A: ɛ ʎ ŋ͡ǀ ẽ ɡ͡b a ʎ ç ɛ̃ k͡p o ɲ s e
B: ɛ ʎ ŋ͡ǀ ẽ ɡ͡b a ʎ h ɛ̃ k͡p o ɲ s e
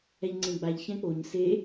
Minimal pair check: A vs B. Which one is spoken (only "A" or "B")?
A